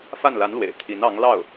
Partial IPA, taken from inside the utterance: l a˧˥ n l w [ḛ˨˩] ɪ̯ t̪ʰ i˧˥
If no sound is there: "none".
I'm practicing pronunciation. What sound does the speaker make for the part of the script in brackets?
ḛ˨˩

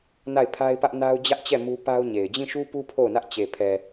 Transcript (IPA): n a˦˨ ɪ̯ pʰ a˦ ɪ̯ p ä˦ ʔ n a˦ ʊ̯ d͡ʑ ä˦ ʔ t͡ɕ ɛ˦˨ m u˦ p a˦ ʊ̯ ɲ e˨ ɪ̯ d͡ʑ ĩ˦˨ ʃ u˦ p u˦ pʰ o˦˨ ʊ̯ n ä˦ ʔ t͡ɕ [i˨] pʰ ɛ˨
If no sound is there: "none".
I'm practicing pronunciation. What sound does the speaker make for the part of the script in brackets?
e˨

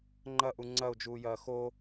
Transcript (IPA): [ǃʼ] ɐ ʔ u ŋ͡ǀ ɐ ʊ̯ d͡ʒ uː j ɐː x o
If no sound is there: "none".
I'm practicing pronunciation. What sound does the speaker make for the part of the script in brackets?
ŋ͡ǃ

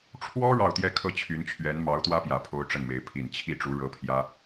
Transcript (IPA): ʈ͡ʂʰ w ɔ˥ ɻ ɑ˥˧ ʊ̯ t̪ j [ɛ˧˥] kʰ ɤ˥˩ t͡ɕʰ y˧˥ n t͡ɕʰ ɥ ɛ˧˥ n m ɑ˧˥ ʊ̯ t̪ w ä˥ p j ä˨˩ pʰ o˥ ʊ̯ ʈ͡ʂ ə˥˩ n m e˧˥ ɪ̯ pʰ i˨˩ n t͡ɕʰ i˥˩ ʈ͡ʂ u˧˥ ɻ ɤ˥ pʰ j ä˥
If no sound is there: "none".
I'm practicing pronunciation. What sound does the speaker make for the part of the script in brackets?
ɛ˥˧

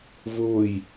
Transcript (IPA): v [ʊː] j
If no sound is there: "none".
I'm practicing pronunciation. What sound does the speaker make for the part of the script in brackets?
ʊː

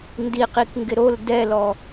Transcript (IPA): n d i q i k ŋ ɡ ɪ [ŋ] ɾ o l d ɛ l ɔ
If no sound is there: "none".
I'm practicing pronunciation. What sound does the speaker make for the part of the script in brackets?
none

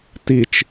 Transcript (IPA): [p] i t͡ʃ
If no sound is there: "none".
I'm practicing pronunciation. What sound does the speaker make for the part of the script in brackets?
t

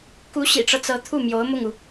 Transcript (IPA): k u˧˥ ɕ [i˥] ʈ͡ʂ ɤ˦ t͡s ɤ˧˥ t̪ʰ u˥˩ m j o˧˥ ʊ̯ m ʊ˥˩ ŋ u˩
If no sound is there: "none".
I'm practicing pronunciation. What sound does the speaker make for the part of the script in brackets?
ḭ˨˩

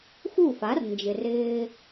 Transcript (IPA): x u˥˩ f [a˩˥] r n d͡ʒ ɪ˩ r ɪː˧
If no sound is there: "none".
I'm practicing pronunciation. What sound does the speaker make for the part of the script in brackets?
a˩˥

